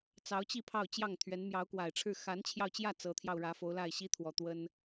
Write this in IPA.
t͡sɑ˧˥ʊ̯t͡ɕi˥˧ pʰɑ˥˧ʊ̯t͡ɕjɑ˥˩ŋt̪ʰɥɛ˧˥n mjɑ˧˥ʊ̯kwa˨˩ɪ̯ʈ͡ʂʰɻ̩˥˩ xa˧˥nt͡ɕʰjɑ˧ʊ̯t͡ɕjä˥˩ t͡sɤ˧˥t̪ʰjɑ˧ʊ̯ ɻä˧˥fo˧˥ʊ̯ la˥˩ɪ̯ɕi˥t̪ʰwɔ˨˩ t̪wə˥n

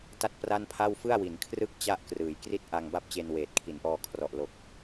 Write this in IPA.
ta˥˩t̚pra˥˩npʰa˥˩w fɯ˥˩a̯wi˩˦nkʰrɯ˥˩k̚ t͡ɕa˥˩ʔkrɯː˩˦j kri˥˩t̚ ʔa˧ŋba˥˩p̚ t͡ɕe˧nweː˨˩t̚kʰi˩˦nʔɔː˧ kʰrɔ˨˩ʔlo˨˩k̚

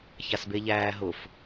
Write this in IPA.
çasbeʎæːɦʊf

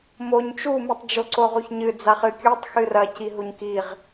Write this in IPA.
moɲ t͡ʃumɨtˤ d͡ʒoǀoʁuçɲɨ d͡zaχɨkʲutˤ xɨrɐciɦuɲ kiʁ

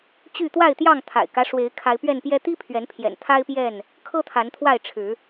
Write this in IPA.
t͡ɕy˥˨ t̪wa˥˨ɪ̯t̪jɑ˥˨ŋt̪ʰa̰˨˩ɪ̯kä˦ ʂwe˨˦ɪ̯kʰa˨˦ɪ̯pɥɛ˥˨npjɛ˦ t̪i˦pʰɥɛ˨˦npʰjɛ̰˨˩n t̪ʰa˦ɪ̯pjɛ˥˨n | kʰɤ˦t̪ʰa˨˦nt̪ʰwa˥˨ɪ̯ ʈ͡ʂʰɻ̩˨˦

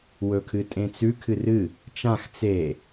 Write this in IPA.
wɵkʰɨtʼẽt͡sʉ kʰɨrɨ | t͡ʃãx t͡se

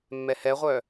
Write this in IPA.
mːɛhɛʁʷœ

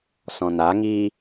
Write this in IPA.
sɔ̃naŋiː

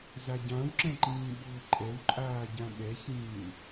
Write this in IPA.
zaɟãwǁɛ̃ǃĩː ɓʊːǃʼɛwǃʼaːɟã ɓɛçĩː

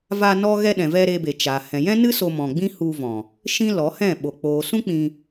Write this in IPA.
va˧ nɔ˦ ɣɛ˧ɗɛ̃˨vɛ˧ ɾe˧be˨t͡ʃa˨ hɛ̃˨ jɛ̃˦nɨ˦ so˧mɔ̃˨ ɡ͡bĩ˦hu˧vɔ̃˨ | ʃĩ˦lɔ˨˦hɛ̃˦˨ ɓo˨ k͡poː˨sũ˦ k͡pĩ˧

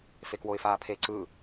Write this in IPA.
fekwoɪ̯faːpʰe ǀɯ

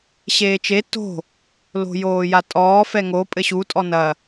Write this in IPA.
ɕeːt͡ʃe to̤ | lo̤joːjatʼɔː fɛŋo pʼɘɕu tʼɔnɐ

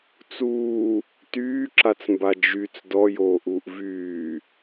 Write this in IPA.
t͡suː | tyːǁat͡smba d͡ʒyt͡s dɔjoːʔuːʔ vyː

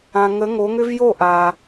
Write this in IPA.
ã˨ ŋə˨˦ŋo˨˦ŋʏ˦v jo˦˨ ʔa˨

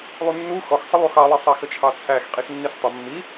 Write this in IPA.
lˠunːu xɔxsˤə lˠuxɑlˠi sˤæxət͡ʃʰɑt͡sʰæx qʼixnːistˤʊ mːi

